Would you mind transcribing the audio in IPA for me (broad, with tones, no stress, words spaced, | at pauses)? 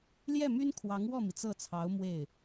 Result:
ljɛ˥˩my˥n kʰwɑ˧˥ŋwɔ˥˩mi˩ t͡sɤ˥˩t͡sʰɑ˧˥ʊ̯ mwe˥˩ɪ̯